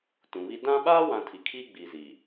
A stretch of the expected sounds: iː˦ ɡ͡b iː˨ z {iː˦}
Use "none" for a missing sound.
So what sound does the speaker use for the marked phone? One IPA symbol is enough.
iː˨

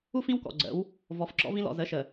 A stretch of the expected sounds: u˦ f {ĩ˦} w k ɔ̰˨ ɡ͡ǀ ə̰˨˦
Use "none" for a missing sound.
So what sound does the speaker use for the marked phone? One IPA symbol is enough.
ĩ˦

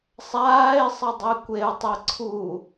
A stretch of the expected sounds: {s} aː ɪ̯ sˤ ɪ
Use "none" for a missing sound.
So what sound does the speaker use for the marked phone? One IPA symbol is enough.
sˤ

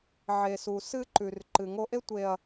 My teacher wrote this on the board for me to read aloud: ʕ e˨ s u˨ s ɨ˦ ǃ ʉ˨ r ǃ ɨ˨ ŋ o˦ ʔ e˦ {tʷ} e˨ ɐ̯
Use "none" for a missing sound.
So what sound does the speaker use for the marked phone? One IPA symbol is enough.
tʷ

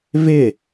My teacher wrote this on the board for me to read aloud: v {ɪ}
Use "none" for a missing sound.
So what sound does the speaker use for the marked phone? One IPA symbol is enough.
ɪ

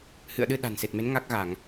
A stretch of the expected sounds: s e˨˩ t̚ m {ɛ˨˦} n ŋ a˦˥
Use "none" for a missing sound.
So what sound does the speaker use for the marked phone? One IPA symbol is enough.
e˨˦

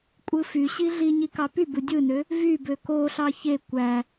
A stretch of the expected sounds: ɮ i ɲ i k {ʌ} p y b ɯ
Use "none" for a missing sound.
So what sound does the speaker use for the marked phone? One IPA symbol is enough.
ɑ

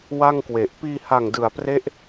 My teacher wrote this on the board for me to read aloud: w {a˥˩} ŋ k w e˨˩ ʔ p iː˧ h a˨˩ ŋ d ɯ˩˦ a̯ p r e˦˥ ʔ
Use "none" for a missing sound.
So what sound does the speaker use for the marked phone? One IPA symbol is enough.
a˥˩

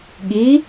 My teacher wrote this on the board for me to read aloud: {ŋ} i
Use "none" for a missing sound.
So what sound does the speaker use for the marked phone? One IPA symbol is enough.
ɠ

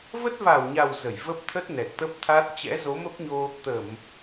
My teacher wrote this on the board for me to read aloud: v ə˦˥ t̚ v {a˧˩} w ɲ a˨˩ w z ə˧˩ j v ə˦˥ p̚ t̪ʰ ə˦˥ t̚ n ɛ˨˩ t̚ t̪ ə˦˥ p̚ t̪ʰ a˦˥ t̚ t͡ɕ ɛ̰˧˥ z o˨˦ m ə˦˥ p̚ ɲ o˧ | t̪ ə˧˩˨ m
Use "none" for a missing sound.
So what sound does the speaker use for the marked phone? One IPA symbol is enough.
a˧˩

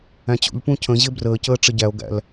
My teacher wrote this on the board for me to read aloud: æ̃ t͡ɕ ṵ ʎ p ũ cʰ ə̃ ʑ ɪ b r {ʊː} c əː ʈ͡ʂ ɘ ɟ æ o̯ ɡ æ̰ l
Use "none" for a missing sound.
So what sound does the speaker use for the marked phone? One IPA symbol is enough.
əː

